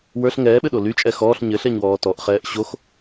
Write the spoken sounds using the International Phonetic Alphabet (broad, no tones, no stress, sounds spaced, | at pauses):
w ə˞ ɬ ŋ ɛː ɓ ɘ ɗ o l y t͡ʃʼ ɛ x ɔː ɬ ɲ ɘ ɬ ɛ ɲ w ɔː t ɔ ʔ χ ɛː ʔ ɕ o x